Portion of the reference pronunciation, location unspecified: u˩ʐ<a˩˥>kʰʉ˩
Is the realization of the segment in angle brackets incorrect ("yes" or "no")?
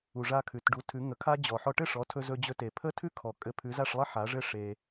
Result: yes